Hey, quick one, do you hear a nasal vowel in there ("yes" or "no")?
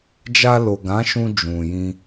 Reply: yes